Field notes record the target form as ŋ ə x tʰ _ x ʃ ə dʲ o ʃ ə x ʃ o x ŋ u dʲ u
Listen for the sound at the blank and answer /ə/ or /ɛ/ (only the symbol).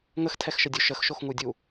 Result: ɛ